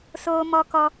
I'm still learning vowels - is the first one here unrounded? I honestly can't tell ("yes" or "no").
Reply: no